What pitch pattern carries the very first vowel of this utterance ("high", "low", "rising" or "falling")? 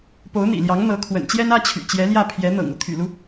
rising